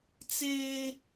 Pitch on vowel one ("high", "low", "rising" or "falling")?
high